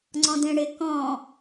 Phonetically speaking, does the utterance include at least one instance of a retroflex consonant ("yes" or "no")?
yes